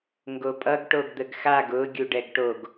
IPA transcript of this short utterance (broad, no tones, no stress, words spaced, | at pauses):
ŋɡopʼʌɡ ʈoɡd̪əɡxaɡ ʊ ɡʲuɖɛɡʈoɡ